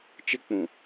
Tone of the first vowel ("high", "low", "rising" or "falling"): high